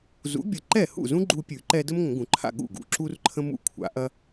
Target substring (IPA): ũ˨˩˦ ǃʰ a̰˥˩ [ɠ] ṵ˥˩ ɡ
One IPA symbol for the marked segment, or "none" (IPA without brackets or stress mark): ɠ